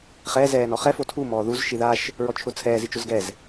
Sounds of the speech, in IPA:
χɛ zɛːnɔχɛ fotʰu mɔːðuz ʃiðaʃ | ɹɔt͡ʃʰʊt͡sʰɛːz it͡ʃʊzɡɛz

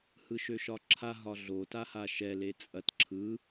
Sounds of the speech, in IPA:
hɯʃøʃɒǁʰa ɦɒɮo tahaʃɛ let͡sʼɐt ǁʰɯ

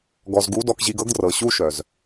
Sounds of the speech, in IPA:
ɡɔ˨zɡu˨˦ dɔ˧kʑi˧ɡɤ˦ɡdrɤ˨ ɕu˦ ʃœ˨z

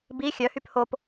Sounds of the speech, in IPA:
bi xʲœhyp hop

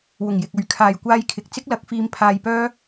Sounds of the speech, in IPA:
wʊ˨˩ŋjɪ˨k̚ɵ˨ɥ kʰaː˨jkʷaː˧jkʰɪ˨k̚ t͡sɪ˥k̚lɐ˨˥k̚fiː˧m pʰaː˧jpœː˥

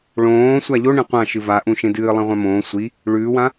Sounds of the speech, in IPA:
ɭõː sʷaʎo ɳẽqʷã ʃɨvaʔũ ʃẽdɨː lˠẽʁʷãmõː sʷi | ɭʉːwã

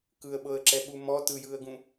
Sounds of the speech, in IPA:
kɯə̯ɓɤə̯ǁɛɓu mɔ tɯjɯə̯ɡũ

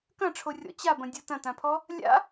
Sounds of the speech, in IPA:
kɐ̃ʈ͡ʂʰorʲɔ̰ t͡ɕabɐ̃dʲɔ tɐ̃tãpʰɔ | lʲa̰

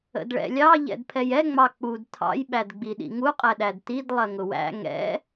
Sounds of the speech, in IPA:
ə̰dɭɛ̰lʲɑ ʎɛ̰dpʰɛjɛ ŋ͡mɑk͡pud tʰɑ̰j ɓædɡ͡biɗḭŋu qʼɛɗædtid lˠɜŋʊwæ̰ ŋɛ̰

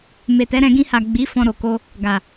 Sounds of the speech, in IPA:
me˨tɛ˨˦ɾɛ̃˧ ɡĩ˧ha˨ ɡ͡bi˨˦ fɔ̃˧ɾo˨ ko˧ | ɡa˨

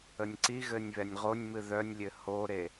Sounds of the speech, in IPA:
ənʲǀiɣɘnʲ βɛnʲʁonʲmɨ ðœnʲlʲɘ hoɾe

